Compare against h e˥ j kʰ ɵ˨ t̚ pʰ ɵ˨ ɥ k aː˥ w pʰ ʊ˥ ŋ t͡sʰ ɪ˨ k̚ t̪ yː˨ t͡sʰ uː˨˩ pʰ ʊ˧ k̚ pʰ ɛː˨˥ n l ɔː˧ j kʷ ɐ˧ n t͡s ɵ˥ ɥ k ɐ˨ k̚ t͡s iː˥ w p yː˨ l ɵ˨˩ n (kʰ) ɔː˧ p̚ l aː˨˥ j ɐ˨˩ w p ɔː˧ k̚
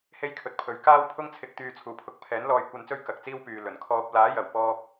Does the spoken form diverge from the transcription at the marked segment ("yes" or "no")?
no